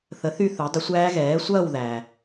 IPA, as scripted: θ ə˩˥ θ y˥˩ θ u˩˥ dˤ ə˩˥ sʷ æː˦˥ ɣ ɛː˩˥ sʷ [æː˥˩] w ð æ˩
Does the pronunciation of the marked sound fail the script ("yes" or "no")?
yes